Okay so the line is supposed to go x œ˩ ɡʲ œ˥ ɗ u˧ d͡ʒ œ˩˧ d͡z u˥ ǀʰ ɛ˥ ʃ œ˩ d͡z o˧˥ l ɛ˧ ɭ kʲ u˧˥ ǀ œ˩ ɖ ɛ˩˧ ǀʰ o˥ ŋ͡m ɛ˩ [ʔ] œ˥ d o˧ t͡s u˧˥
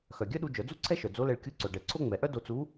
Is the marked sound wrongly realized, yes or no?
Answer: no